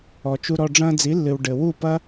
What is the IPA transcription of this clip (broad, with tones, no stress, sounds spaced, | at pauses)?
ɔ˨ t͡ʃ u˧ ɾ ɔ˧ ɖ͡ʐ ɐ̃ː˧ d͡z i˨˦ lː ɨ˨ w ɖ ɘ˨ w u˦˨ p ɐ˦